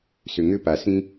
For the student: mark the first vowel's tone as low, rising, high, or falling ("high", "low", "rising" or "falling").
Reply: low